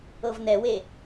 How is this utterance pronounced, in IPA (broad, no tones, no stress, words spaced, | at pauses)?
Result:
ɤvnɛwe